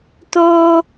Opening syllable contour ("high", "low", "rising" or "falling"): high